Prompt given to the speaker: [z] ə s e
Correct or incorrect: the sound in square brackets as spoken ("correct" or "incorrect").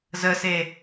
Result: correct